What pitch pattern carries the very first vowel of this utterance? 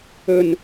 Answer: low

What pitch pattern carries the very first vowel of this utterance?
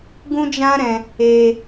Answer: high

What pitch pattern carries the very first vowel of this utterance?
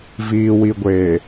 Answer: low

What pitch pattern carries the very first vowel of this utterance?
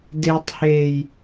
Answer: low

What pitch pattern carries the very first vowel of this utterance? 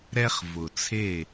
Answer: high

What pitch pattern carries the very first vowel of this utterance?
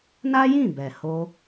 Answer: high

